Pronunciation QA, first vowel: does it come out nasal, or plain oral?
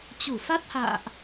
oral